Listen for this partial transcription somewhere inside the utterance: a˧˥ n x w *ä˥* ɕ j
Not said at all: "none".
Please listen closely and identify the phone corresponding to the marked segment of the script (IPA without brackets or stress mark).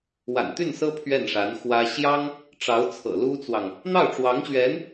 ä˥